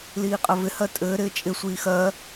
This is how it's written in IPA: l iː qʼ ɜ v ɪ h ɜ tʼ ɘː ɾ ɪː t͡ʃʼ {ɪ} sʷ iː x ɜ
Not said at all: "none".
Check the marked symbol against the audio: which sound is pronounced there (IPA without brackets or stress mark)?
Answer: ɪ